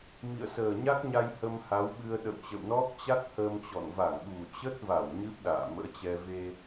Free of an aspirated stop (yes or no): yes